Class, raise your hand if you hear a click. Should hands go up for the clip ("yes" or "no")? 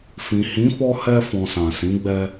no